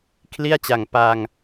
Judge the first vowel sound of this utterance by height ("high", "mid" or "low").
high